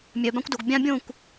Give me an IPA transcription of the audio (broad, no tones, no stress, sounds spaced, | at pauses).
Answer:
mʲ œ b ã kʷ d o ɡ bʲ ã bʲ õ kʷ